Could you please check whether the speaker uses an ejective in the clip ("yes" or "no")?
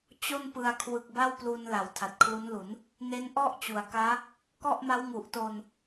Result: no